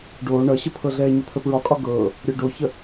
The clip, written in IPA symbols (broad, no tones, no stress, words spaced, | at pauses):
ɖoː ɳʌɕəpʰɤɮɛː ɲəpʰəpɹɒkʼɒ ɡɤː | ɾʲɔɖoçə